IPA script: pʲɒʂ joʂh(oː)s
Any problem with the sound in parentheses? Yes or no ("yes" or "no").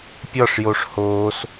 no